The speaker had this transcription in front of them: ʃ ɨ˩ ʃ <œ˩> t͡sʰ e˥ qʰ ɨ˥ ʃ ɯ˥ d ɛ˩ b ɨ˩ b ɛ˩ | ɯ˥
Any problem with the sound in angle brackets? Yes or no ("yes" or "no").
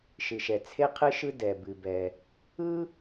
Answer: yes